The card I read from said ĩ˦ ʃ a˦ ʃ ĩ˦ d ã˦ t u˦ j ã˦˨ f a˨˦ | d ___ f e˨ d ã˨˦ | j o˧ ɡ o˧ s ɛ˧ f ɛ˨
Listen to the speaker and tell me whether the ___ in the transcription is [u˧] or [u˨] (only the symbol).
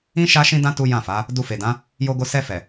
u˧